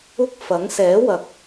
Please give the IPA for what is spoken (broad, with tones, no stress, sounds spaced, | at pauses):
ʊ˥ k̚ f ɐ˨˥ ŋ s ɛː˨˥ w ɐ˨ k̚